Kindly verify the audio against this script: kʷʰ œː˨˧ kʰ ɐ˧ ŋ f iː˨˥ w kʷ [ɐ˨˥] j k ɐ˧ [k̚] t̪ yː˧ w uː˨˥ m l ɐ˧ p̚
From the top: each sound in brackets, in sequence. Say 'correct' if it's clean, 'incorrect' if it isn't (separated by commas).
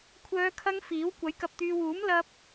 correct, incorrect